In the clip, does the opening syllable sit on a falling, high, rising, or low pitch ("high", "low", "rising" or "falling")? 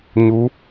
rising